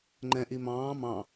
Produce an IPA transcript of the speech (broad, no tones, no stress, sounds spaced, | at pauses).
ŋ͡ǃ ɛ̃ ʔ i m ɑ̃ː m ɑ̃